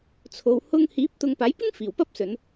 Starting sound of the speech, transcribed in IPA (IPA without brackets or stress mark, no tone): t͡sʰ